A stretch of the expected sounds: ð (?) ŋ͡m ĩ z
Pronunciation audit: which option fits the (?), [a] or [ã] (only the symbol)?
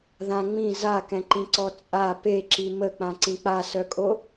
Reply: ã